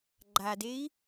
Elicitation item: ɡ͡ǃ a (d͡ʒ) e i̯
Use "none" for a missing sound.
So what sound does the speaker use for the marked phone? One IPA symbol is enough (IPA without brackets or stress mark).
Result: d